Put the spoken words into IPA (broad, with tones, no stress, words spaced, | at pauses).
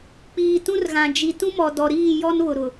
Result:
k͡piː˨ tũ˦rɣã˨ d͡ʒi˨ tũ˦mɔ˨ dɔ˨ɾiː˦˨ jɔ˦nβʊ˨ɾʊ˨